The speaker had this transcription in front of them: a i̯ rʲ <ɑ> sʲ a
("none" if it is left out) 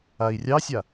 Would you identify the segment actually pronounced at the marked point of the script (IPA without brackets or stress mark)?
ɑ